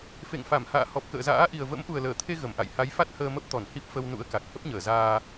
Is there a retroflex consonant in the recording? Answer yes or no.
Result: no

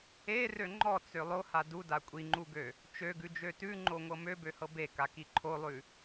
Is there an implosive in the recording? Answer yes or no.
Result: no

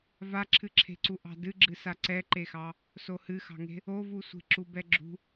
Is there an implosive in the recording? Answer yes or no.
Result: no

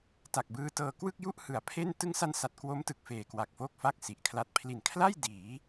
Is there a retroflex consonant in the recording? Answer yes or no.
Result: no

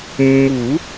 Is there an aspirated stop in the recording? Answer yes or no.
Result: no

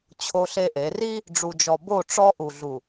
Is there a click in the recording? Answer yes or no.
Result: no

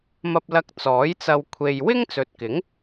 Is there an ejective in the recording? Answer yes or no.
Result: no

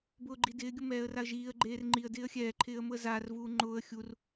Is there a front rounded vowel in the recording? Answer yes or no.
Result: no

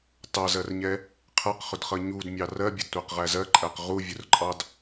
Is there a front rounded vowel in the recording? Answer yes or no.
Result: no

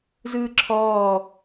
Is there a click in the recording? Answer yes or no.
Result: yes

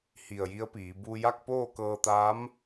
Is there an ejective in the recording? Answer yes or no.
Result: no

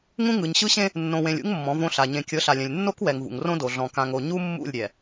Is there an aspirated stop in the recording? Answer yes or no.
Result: no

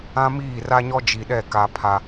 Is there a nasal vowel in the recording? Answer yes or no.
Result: yes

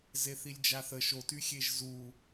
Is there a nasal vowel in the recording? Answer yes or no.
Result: no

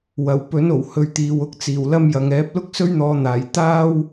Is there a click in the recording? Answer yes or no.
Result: no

